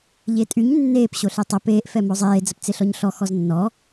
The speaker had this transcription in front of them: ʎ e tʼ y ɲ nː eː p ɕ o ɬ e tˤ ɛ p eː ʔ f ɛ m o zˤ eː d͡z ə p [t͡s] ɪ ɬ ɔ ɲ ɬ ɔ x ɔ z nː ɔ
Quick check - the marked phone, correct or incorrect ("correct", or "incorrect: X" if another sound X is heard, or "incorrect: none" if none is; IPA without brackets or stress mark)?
correct